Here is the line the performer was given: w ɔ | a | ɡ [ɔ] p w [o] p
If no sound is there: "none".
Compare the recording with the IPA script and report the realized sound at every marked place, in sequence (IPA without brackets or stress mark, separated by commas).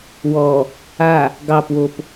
ɑ, o